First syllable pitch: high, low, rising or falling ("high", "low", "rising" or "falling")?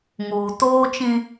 low